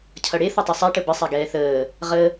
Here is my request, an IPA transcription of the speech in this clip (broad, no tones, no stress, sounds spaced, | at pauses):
cʰ ʌ ɽ e θ ʌ tˤ ʌ sˤ ɛ ʈ ə b ə sˤ a ɡ ɛː θ əː | ʁ ə